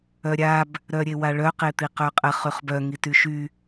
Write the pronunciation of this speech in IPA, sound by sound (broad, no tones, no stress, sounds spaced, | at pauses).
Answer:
œ ɾʲ a b | ɾ œ ɾʲ e w a ɭ œ q e t̪ i q œ qʼ ə χ y χ b œ ŋ i t y ʃ y